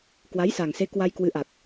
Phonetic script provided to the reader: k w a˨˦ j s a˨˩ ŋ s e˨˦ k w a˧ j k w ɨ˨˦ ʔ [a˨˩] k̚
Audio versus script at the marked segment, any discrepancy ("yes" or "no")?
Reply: no